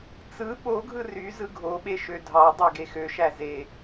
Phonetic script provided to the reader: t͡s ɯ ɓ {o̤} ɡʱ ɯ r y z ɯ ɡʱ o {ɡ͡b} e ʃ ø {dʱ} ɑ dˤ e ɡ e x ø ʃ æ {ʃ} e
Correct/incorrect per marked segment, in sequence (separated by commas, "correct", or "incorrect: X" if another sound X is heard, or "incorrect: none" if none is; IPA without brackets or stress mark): incorrect: o, incorrect: ɓ, correct, incorrect: z